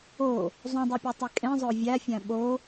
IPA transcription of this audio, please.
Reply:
o | zˤ ũ dˤ i pʲ o tˤ i kʼ ẽ zˤ o vʲ æ fʲ æ̃ ɓ o

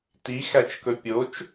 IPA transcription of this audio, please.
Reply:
t i x æ t͡ʃ k ɵ pʲ o t͡ʃ

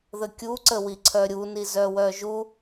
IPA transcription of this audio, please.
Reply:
ð ə kʲ u ǀ ə w i ǀʰ œ ɾʲ u n i z œ w œ ʒ u

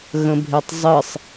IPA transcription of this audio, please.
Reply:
ɣ ə̃ bʱ e tˤ zˤ ɨ sˤ

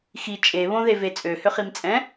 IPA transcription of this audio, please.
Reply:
x i t͡ʃʼ e β õ ð e v e t͡sʼ ø h ʏ χ i m t͡sʼ ɛ̃

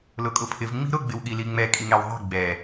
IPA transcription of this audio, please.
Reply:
l ʊ kʼ ʊ pʰ ɪ v ŋ͡m i̤ ɾ ʊ ɡ͡b ɪ w ɠ i l i ŋ͡m ɛ kʼ i ŋ ɛ w ðˤ e̤ ɡ͡b ɛ

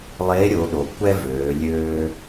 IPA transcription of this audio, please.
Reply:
lˠ e˧˥ ɾʲ o˩˧ ɗ o˩ kʷ ɛ˥ v øː˩˧ lʲ øː˧

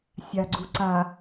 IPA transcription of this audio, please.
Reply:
sʲ a ɡ͡ǀ u ǀ a

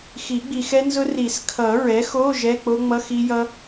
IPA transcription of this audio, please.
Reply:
x i˨˩˦ ɡ͡b i˨ x ɛ˦˥ n z ʊ˦˥ r i˨˩˦ s kʰ ʌ˨˩˦ ɹ ɛ˩˥ x o˧˥˧ ʒ ɛ˧˥˧ k͡p o˦˥ ŋ͡m ʌ˧˥˧ x i˦˥ j ʌ˦˥

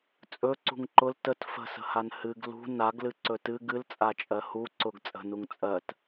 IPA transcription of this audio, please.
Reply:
t͡sʼ ɵ ǀ ṳ ŋ ǃ ʊ l t ə t f ə̤ s ə̤ h a n h ɨ ɡ l ṳ n a ɡ l ɨ ǀ ɵ t ɨ ɡ ɨ l t͡sʼ a t͡ʃʼ ɜ h u ǀ ʊ ɡ t͡sʼ ə̤ n u ŋ t͡sʼ ɜ t

